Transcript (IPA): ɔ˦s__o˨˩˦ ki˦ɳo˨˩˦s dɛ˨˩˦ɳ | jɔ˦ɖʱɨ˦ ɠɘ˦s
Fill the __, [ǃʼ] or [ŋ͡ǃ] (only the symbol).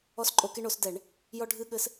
ǃʼ